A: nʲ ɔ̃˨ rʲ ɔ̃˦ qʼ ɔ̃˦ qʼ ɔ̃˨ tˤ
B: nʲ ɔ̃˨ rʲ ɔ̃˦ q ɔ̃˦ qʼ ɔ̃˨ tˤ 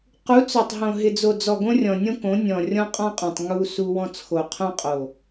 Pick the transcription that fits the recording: A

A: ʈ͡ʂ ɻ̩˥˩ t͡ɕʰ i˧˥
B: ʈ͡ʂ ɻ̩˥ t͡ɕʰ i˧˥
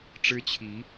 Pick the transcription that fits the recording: B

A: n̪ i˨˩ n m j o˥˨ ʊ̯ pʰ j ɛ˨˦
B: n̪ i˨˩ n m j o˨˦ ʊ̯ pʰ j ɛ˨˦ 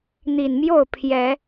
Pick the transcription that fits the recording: A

